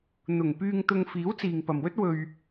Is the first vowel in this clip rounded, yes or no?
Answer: yes